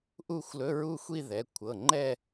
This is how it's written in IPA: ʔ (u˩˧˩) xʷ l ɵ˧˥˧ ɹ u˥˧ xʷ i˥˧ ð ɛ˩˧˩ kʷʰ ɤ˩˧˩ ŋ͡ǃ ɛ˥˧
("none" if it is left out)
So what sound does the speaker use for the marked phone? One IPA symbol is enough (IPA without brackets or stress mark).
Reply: u˥˧